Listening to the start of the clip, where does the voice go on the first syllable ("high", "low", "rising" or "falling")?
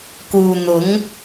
low